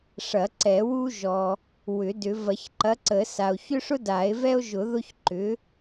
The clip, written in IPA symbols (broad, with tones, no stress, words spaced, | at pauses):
ʂɐ˨˩˦ǀɛ˨˩˦wu˦ ʒɔ˨ | wʏ˨˩˦dʏ˨˩˦ vɐ˨˩˦çǃɐ˨˥ǀə˨˩˦sa˨o̯ çʏ˦ʂʊ˦ da˨˩˦e̯vɛ˦o̯ʒʊ˨˩˦ ðʊ˦çǃʏ˨˥